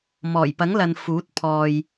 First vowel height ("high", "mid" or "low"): mid